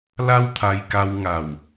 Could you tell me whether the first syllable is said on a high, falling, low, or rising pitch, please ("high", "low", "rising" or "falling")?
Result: high